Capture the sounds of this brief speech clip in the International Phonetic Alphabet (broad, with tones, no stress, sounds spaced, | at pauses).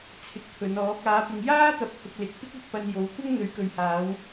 t͡sʰ ɪ˨˥ k̚ pʰ ɵ˨˧ n ɔː˨˥ k̚ aː˨˧ p ɪ˨ ŋ j aː˥ t̪ ɐ˨˥ p̚ h ʊ˧ k̚ l ɪ˨ k̚ p ɪ˥ k̚ ɐ˥ k̚ p ɐ˧ n j o˨˥ w kʷ ɐ˥ ŋ n̪ ɵ˨˧ ɥ k ɵ˨ ɥ h aː˨˧ w